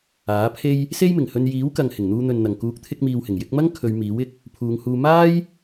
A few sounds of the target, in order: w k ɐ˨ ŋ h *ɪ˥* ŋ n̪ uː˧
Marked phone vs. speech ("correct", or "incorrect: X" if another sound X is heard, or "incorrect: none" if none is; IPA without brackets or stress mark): incorrect: ɪ˨˩